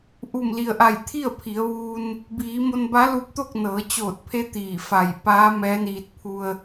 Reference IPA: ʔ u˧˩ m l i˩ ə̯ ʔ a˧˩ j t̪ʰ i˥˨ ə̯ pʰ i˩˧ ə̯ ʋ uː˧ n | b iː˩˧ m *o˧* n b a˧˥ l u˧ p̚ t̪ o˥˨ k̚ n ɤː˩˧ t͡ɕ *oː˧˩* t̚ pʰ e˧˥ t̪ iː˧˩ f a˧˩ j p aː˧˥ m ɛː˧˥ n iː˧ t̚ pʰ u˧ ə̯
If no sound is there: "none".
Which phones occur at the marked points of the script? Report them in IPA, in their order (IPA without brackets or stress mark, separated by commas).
o˧, oː˧˩